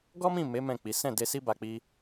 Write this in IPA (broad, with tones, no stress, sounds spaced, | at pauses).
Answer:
ɡ ɔ˦ m ĩ˦˨ m e˨˦ m ɛ̃˦˨ k͡p i˨˦ s ɛ̃˦˨ d e˧ s i˦ b a˧ k͡p i˧